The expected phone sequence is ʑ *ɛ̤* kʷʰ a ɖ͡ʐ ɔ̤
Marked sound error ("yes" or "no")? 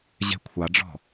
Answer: yes